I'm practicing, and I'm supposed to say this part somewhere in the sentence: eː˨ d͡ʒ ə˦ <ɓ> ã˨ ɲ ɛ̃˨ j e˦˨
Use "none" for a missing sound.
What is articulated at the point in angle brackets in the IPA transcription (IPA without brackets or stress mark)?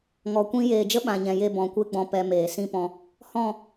ɓ